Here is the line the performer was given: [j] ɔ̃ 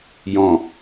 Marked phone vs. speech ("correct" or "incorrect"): correct